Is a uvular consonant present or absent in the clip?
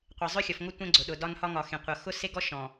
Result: present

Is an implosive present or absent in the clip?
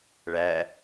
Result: absent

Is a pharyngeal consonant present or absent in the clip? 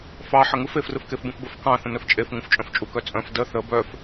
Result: present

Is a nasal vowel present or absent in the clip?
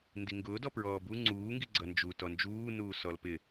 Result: absent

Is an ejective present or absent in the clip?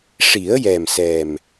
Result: absent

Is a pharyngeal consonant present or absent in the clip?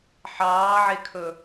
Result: present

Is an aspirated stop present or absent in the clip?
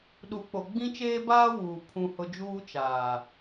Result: present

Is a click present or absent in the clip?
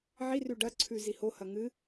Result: present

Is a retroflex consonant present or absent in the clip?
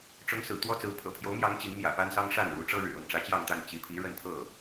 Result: present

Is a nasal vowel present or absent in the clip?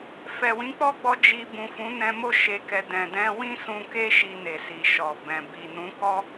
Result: present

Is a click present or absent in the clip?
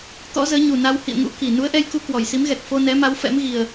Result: absent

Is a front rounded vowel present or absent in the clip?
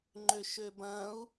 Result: present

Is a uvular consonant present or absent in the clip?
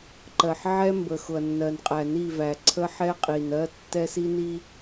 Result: present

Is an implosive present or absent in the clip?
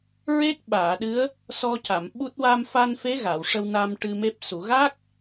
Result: present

